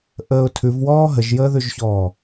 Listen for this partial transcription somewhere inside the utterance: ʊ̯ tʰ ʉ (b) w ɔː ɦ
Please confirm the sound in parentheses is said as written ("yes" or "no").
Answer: no